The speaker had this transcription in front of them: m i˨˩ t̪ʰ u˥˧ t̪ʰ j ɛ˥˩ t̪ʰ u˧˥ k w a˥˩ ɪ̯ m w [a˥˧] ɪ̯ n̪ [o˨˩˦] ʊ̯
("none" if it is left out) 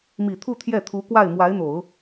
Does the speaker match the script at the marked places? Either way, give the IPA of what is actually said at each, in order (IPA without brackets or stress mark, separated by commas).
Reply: a˧˥, o˨˩˦